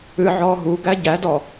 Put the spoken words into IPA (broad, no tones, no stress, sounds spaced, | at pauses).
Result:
ɨ ʕ ɔː ɦ u ɡ æ ɟ æ d ɔ